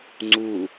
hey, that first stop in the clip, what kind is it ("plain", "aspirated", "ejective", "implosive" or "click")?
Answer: click